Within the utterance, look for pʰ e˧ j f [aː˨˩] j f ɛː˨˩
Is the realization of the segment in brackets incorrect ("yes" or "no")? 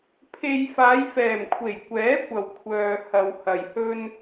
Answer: yes